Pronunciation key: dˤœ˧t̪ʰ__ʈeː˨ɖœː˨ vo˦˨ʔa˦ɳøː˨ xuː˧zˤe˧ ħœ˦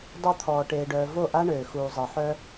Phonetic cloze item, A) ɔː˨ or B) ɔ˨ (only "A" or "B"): A